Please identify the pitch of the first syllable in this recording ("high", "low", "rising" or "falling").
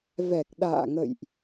low